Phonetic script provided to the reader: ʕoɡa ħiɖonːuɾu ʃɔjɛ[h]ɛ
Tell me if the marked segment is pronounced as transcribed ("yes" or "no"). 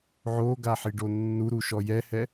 yes